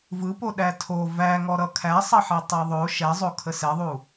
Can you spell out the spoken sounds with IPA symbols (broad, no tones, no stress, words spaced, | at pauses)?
vɯpo ɗætʰo væŋɔ ɾʌkʰæsˤʌħɛ tˤæðˤo ʃɛzˤo kʰəsɛðˤu